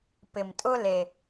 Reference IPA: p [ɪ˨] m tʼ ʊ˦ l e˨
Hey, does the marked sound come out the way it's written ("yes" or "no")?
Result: yes